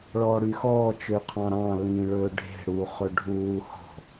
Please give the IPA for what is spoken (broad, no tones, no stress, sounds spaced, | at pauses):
ɭ ɔː ɽ y x ɔː t͡ʃ ø qʰ ɑ̃ ɾ ɑ̃ l ĩː ɭ ɵː ɖʱ e̤ ɽ u χ ɵ ɖʱ uː h ɔ̤